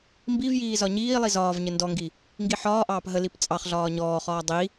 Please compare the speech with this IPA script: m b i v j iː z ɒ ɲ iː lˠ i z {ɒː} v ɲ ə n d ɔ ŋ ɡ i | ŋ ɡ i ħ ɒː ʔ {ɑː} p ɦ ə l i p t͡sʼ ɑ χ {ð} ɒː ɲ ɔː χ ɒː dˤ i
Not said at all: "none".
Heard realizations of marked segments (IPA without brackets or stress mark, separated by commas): ɒː, ɑː, ɮ